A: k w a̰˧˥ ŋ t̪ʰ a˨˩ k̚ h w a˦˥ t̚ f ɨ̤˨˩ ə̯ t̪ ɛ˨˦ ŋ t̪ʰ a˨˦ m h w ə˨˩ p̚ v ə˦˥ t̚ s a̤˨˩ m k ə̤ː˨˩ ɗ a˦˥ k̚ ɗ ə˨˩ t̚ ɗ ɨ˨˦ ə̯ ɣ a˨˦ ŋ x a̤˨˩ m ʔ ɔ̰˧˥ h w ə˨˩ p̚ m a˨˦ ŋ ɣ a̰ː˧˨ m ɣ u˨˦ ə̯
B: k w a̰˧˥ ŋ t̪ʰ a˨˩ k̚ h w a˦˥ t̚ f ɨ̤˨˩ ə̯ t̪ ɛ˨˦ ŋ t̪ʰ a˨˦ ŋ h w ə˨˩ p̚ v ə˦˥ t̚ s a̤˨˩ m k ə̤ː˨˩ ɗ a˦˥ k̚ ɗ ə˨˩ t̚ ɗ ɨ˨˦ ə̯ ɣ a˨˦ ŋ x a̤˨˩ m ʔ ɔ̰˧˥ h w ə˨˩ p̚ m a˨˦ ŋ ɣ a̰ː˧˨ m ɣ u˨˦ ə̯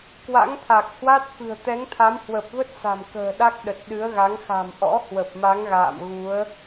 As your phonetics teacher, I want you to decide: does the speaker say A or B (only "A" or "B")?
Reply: A